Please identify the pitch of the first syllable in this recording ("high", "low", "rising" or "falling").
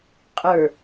low